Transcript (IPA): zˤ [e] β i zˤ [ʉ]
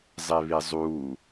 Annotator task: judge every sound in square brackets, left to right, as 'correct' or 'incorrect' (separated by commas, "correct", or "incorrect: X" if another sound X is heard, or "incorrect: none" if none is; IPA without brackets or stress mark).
correct, incorrect: u